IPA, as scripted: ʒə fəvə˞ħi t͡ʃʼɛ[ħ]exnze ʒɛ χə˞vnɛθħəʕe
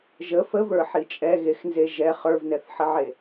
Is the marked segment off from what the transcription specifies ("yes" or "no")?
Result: yes